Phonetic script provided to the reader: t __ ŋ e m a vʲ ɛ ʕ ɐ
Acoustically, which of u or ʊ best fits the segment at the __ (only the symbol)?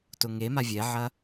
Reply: ʊ